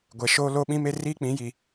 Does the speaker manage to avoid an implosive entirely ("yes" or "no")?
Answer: no